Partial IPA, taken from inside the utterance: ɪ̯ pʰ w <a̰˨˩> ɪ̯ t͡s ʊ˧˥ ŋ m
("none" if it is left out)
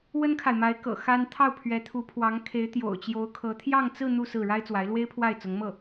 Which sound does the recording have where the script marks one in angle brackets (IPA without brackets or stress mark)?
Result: a˥˩